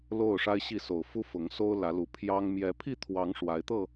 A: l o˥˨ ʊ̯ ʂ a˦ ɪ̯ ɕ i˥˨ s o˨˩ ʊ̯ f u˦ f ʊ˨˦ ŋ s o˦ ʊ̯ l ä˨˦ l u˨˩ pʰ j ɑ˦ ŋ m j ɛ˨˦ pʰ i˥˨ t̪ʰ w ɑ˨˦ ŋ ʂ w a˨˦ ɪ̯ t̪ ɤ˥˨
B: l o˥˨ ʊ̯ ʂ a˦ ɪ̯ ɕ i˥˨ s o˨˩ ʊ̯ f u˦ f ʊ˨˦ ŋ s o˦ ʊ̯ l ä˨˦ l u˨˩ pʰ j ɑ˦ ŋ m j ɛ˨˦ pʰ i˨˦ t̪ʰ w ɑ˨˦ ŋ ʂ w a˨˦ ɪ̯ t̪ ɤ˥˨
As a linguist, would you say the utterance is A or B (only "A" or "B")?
A